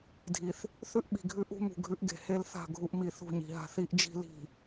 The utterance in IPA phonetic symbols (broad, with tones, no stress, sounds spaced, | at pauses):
dʱ i˨ θ | θ ʉ˦ ʔ ɓ i̤˨ ɡʱ ʉ˦ ʔ ṳ˦ m ṳ˨ ɡʱ ʉ˦ ʔ ɡ e̤˨ h e˦ l θ a̤˦˨ ɡʱ u˦ ʔ m i˨ θ ṳ˦˨ ɲ i̤˨ ɦ a̤˦ θ i˦ ʔ d͡ʒ i̤˦ l i̤˨